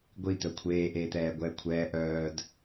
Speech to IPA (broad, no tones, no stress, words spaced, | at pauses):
ɡʷit̪œ kʷʰeːʔeːt̪ɛː ɡʷɛːkʷʰɛː ʔœːd